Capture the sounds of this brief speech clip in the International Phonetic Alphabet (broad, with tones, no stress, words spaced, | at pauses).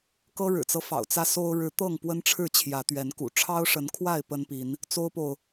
kɤ˦ɻɻ̩˨˩t͡sɤ˦ fɑ̰˨˩ʊ̯t͡sä˦so˦ʊ̯ ɻɻ̩˨˦ t̪ɤ˥˨ŋpwə˦nʈ͡ʂʰɻ̩˥˨ t͡ɕʰjä˨˦t̪ɥɛ˨˦nkṵ˨˩ ʈ͡ʂʰɑ˦ʊ̯ʂə˨˦nkʰwa˥˨ɪ̯ pə˦npi˨˦n | t͡so˦ʊ̯po˨ʊ̯